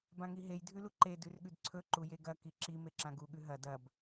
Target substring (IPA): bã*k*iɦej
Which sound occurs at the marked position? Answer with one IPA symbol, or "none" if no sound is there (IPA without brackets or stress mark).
ŋ